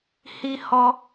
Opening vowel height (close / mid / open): close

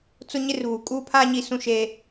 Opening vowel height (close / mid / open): close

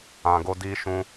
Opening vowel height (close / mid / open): open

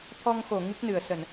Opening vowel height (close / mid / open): mid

